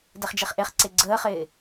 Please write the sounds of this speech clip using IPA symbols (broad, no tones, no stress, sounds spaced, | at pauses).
d ɛ χ d͡ʒ e χ ʔ e χ ǀ e ɡ͡ǀ əː χ ɪː